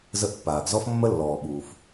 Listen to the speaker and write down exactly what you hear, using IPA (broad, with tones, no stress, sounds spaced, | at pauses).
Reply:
z ə˦ ʔ pː aː˩ ɡ z ɔ˦ f mː ə˦ lː ɔː˩ ɓ uː˩ f